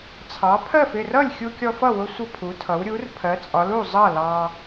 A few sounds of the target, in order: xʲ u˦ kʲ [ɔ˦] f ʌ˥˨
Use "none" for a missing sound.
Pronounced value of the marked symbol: ɔ˦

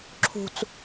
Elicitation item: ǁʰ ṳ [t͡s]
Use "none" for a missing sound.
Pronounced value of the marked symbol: t͡s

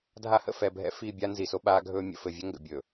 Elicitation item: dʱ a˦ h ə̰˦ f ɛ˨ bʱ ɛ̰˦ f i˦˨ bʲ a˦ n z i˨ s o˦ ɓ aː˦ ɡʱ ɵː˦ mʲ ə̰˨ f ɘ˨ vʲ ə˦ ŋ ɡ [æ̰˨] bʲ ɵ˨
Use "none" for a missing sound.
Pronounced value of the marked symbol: ə̰˨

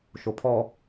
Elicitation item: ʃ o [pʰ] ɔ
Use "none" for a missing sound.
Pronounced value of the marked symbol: pʰ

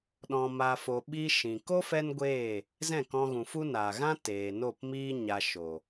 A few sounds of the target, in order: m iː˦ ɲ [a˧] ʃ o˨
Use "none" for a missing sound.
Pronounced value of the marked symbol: a˧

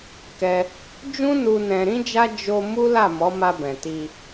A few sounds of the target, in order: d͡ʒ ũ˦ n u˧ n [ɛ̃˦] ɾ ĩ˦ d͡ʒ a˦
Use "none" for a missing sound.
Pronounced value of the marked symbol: ɛ̃˧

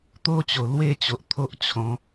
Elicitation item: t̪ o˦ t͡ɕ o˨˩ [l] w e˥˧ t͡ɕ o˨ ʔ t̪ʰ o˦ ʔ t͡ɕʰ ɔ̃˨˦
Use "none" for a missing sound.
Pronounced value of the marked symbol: l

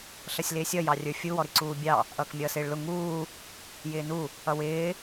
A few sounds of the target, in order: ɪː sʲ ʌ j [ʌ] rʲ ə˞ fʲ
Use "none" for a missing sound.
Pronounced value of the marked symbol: ɑ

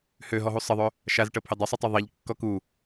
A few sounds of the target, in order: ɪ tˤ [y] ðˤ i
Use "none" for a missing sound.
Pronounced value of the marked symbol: y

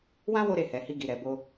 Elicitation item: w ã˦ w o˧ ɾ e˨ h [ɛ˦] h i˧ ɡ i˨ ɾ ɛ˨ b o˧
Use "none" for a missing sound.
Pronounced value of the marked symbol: ɛ˨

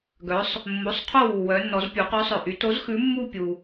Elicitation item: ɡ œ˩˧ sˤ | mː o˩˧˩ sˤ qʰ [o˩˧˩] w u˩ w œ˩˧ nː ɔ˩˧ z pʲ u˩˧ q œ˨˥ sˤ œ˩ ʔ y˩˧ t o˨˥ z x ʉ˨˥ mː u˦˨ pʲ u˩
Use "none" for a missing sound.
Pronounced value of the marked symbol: o˦˨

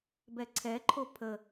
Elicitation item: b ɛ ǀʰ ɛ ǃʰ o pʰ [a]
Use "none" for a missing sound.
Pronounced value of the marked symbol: ə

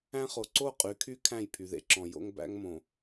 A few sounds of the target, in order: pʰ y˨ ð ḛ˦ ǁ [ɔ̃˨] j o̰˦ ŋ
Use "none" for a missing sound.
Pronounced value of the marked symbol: ɔ̃˨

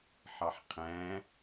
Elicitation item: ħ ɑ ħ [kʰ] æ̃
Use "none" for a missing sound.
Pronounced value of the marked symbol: qʰ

